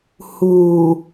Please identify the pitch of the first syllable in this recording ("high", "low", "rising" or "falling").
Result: low